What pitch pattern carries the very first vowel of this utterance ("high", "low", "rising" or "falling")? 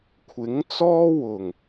rising